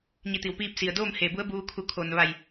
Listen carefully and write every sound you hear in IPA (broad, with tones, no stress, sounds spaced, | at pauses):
ɲ i˧˩ t̪ i˩ w p iː˧ p̚ s i˩ ə̯ d oː˥˨ m h eː˧˩ b u˧˥ ə̯ b uː˧ kʰ u˧˩ kʰ o˩ n ʋ a˧˩ j